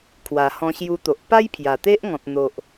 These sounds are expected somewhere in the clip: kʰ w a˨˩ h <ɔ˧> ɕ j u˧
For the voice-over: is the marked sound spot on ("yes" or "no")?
no